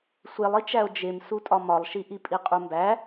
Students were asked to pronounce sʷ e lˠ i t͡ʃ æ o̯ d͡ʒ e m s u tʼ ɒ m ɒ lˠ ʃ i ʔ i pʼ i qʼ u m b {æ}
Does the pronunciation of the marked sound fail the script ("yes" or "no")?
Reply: no